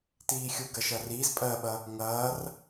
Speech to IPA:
t iː xʲ u ɡ ɐ ʃ ɐ r iː z pʼ ɜ ɓ ɐ | ŋ ɐː r

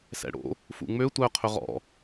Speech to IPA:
s ɛ̰ ɽ o̰ | f ṵ ŋ͡m ø tʷ œ qʰ ɵ ʁ ɔ̰

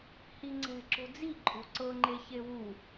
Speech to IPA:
h i ŋ͡ǀ ɛ̤ ǁ o̤ d͡z i ǃʼ o̤ ǀ ɤ ŋ͡ǃ e ç e w u

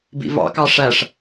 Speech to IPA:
b ḭ v ɑ̰ k ɑ ʂ æ ʂ

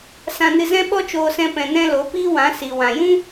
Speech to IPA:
s ã˧ n ɨ˧ z ɛ̃˦ ɓ ɔ˦ t͡ʃ oː˧ s ɛ̃˧ p ɛ̃˨ n ɛ̃˧ l o˨˦ p iː˦ w ã˨˦ s i˨ w ã˨ j ũ˦

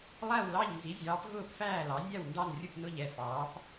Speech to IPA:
lˠ æ˥˨ w l ɑ˥˨ ʎ n z i˨˥ zʲ ɑː˨˥ p ɣ ʊː˥˨ p f æː˥˨ l ɑ˨˥ nʲ æ˥˨ w n d ɑ˥˨ n rʲ ʊ˥˨ p n ʊ˥˨ ʎ ɛ˥˨ f ɑː˨˥ p

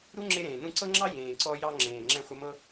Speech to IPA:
ɾ u˦ ŋ͡ǁ e˧ ɾ ẽː˨ n ũ˧ ǀ ɤ˦ ŋ͡ǁ ɑ˦ j ẽː˨ ǀ ɔ˧ j ɑ˧ ŋ͡ǁ ẽː˨ ŋ͡ǁ ɛ̃˧ χʷ ɪ˧ m ɤ˦

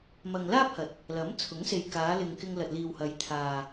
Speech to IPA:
m ɐ˨ ŋ l aː˥ p̚ h ɐ˨˥ t̚ | l ɐ˨˥ m t͡sʰ ʊ˨˥ ŋ s e˨ j k aː˨˧ l ɪ˨ ŋ k ɪ˧ ŋ l ɐ˨ t̚ l iː˨ w h ɐ˨˧ j t̪ʰ aː˨

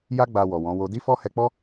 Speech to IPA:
j a˦ ɡ͡b a˧ w ɔ˨ w ɔ̃˨˦ w o˧ d i˦ f ɔ˦ h ɛ˧ k͡p ɔ˦

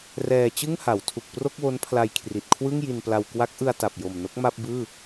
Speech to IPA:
r ɛː˧ t͡ɕ ɯ˥˩ ŋ h a˩˦ w tʰ u˨˩ k̚ p r o˥˩ k̚ w o˦˥ n pʰ l a˧ j kʰ r i˨˩ t̚ kʰ w ɯ˥˩ ŋ j i˧ n p l a˧ w k w a˦˥ k̚ ʔ ɯ˧ a̯ t a˨˩ p̚ j o˨˩ m n o˦˥ k̚ m a˥˩ p̚ b ɯː˥˩

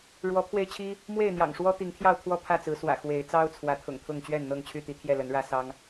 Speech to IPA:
ɻ w ɔ˨˦ pʰ w e˧ ɪ̯ t͡ɕʰ i˦ | m w e˥˨ ɪ̯ n̪ j ɑ̰˨˩ ŋ ʂ w ɔ˦ t̪ i˨˦ ŋ t̪ʰ j ɑ˥˨ ʊ̯ t̪ʰ w ɔ˥˨ pʰ ä˥˨ t͡s ɹ̩˨˦ s w ä̰˨˩ x w e˨˦ ɪ̯ t͡s ɑ˦ ʊ̯ t͡sʰ w ä˨˦ t̪ʰ ʊ̰˨˩ ŋ t̪ʰ ʊ˥˨ ŋ t͡ɕ ɥ ɛ˥˨ n n̪ ɤ˥˨ ŋ t͡ɕʰ y˥˨ t̪ i˨˦ t̪ʰ j ɛ˥˨ l ə˨˦ n ɻ ä˦ s ɑ˦ ŋ

